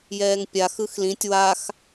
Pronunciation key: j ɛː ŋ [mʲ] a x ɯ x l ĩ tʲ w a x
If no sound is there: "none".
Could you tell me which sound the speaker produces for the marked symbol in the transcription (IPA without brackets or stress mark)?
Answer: pʲ